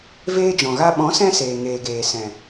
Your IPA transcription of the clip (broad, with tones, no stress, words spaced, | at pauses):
veː˦d͡ʒɔ̃˨ɣa˦ ɓɔ̃˨˦sɛ̃˧ seː˨ŋeː˨ɡeː˨ sɛ̃˨